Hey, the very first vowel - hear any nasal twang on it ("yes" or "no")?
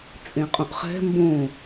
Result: yes